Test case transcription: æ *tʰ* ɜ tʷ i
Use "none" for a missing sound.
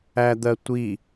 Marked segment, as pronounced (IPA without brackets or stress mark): d̪